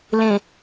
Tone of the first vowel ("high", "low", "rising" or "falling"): low